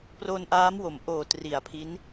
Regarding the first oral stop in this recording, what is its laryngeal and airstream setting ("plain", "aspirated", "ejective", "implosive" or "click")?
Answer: plain